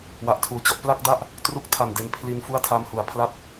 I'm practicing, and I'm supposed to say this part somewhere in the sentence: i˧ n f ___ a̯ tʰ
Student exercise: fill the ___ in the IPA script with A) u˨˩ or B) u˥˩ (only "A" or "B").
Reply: B